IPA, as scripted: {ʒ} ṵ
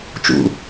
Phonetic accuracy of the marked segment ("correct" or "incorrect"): incorrect